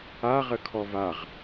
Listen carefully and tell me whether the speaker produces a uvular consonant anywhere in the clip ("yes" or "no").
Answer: yes